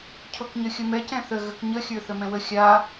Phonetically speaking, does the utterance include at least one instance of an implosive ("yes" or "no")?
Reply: no